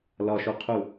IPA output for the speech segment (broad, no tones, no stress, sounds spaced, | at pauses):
l ɒ ʃ o qʰ u